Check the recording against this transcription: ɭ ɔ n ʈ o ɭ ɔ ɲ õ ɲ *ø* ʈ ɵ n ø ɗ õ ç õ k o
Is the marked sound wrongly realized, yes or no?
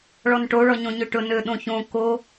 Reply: no